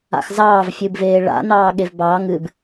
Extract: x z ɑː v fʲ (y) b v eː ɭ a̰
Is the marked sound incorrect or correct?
incorrect